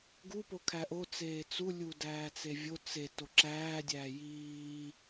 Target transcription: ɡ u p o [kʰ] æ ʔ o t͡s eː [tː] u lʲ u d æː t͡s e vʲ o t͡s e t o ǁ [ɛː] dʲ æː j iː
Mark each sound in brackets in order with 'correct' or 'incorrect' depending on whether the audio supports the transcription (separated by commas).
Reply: correct, incorrect, incorrect